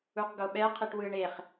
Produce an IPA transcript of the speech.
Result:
u q ɡ o ɓ ɛ qʰ i ʈ w ɯ ɳ e χ

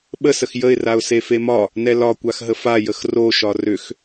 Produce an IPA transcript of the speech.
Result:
ɓ ə s ə x j ə ɪ̯ r a ʊ̯ s e f e m ɒ | n ɛ l ɒ kʷ a x ɦ ə f a j ə x r o ʃ ɒ r ʏ x

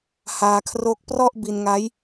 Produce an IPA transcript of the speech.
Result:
h aː˧ kʰ r o˦˥ k̚ p r ɔ˥˩ ʔ b i˧ n ŋ a˦˥ j

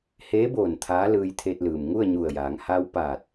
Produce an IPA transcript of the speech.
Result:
h eː˧˥ b oː˧˩ n t̪ʰ aː˧˥ l ɯː˧ j t̪ʰ e˧ t̚ l ɯː˩ m ŋ u˥˨ ə̯ ɲ u˧˩ ə̯ j aː˩˧ ŋ h a˧ w p aː˧˩ t̚

